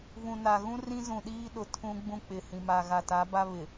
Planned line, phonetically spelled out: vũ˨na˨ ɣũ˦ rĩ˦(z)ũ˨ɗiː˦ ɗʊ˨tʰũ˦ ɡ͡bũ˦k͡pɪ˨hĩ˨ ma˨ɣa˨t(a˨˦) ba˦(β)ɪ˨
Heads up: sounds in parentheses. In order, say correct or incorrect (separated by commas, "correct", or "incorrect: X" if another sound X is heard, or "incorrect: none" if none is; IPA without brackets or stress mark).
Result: correct, correct, correct